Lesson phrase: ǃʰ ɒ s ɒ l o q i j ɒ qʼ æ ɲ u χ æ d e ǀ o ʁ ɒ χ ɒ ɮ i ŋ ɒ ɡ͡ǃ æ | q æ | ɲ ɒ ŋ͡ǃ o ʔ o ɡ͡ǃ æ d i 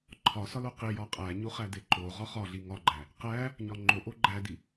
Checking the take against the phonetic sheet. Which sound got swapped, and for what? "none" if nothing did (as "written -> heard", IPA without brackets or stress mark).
ǀ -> ǃ